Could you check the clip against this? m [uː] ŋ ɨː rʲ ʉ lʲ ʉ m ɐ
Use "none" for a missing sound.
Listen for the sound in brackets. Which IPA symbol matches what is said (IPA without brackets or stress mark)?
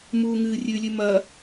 uː